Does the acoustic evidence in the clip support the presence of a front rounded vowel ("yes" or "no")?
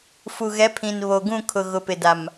no